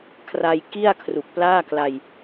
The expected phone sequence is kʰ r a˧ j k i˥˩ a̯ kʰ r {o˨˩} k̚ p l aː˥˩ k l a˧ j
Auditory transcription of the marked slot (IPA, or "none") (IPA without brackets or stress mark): u˨˩